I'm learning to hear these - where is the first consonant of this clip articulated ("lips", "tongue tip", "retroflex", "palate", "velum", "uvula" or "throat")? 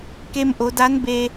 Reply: velum